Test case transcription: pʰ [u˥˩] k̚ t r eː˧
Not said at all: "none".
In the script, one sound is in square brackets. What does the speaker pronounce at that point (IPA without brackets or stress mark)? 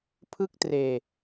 ɯ˥˩